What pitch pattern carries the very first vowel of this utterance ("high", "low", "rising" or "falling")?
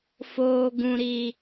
low